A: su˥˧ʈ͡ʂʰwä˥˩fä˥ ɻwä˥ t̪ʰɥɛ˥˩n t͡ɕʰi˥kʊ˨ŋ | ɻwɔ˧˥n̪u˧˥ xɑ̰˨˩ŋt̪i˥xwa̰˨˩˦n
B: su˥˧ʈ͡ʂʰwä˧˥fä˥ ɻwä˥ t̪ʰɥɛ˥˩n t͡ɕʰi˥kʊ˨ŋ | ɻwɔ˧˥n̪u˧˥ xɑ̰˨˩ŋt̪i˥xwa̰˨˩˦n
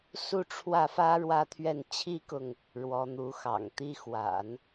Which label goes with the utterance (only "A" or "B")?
A